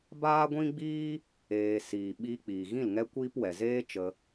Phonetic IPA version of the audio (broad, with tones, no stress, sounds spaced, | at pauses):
b aː˦ ɡʷ ĩ˦ ɡ͡b iː˦ | eː˧ s iː˨ ɓ iː˧ k͡p iː˨ ɣ ĩ˦˨ l ŋ ɛ˦ kʷ iː˦ p w ɛ˨ z eː˦ t͡ʃ ə˧